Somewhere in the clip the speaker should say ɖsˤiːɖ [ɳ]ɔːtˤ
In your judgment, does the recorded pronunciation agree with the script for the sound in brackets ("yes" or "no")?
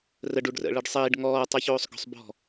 no